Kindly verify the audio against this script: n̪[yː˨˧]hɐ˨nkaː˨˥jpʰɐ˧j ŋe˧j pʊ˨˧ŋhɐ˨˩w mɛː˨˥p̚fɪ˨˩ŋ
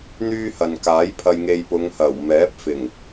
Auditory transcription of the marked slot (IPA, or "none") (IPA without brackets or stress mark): yː˥